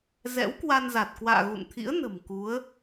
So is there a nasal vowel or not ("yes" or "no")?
no